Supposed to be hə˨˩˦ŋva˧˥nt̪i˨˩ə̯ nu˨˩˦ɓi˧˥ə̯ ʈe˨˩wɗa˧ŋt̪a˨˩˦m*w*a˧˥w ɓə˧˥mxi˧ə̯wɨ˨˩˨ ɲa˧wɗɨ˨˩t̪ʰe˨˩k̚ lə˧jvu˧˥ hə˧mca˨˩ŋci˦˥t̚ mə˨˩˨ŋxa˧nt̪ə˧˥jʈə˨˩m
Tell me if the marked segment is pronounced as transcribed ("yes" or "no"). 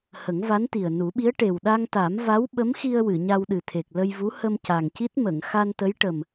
no